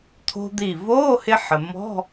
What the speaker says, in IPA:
t̪ʰo̤˧d̪i˧˩ voː˧˥˧hɪ˧ ħə˩mɔ̤˧˥˧

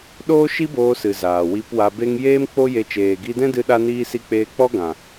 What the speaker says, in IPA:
ɗoː˦ʃi˦boː˧sɨ˨ zaː˨wi˧pwa˧be˦ŋ jeː˦mk͡po˦je˧ t͡ʃeː˨ɡi˧dɛ̃˦ dɨ˦ɗa˦niː˦ si˦ k͡peː˧ k͡pɔ˦ɡã˨

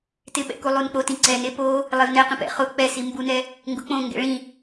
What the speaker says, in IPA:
tɪɓɛ̰ku lˠunk͡pot ĩǀɛne po | lˠevnɛ qĩpɛ̰ χʊ k͡pɛsi mbunɛ | ŋɡʊk͡põ ŋɡɛ̰ɭĩ

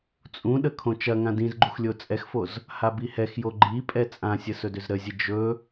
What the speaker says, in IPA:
t͡sʼũɗə kʰõt͡ʃɐŋã dĩzɡ͡ǃux lʲot͡sʼɛxfoz | habihɛxjo ɡ͡ǃi pʼɛt͡sʼãsʲə sɵdʏzɾəzʲə d͡ʒɵ

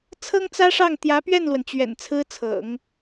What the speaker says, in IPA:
t͡sʰɤ˥ŋt͡sä˥ʂɑ˥˩ŋ t̪jä˧˥ pɥɛ˥˩nlwə˩nt͡ɕɥɛ̰˨˩n t͡sʰɹ̩˥t͡sʰɤ̰˨˩˦ŋ

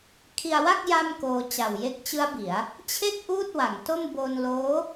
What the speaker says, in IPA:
kʰi˧a̯wa˥˩k̚ ja˥˩mkoː˧ t͡ɕa˨˩wje˦˥k̚t͡ɕɯ˦˥a̯ bi˩˦a̯ | t͡ɕʰe˥˩k̚ ʔuː˥˩t̚wa˩˦ŋto˥˩m bo˧nloː˦˥

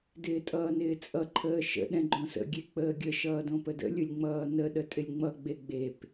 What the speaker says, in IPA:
dɪːtʼʌːnɪːt͡sʼʌ ǃʰəːʃə̰ ɗɛ̃ɡ͡ǃõsə̰ ɡʲek͡pəːɡʲə ʃʌːdõpədə̰ lʲʊlʲŋ͡mʌːnə ɗətʼɪlʲŋ͡mʌ ɡ͡beɡ͡bep

